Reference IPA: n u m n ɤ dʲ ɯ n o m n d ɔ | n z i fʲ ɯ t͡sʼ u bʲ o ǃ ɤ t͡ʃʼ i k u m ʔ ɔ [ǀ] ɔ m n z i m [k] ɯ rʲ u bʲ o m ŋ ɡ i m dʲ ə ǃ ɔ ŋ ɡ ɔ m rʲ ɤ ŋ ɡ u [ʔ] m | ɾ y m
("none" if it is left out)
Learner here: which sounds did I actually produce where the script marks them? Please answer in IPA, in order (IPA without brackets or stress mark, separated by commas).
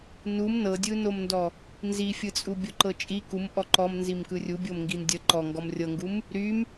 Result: ǃ, k, none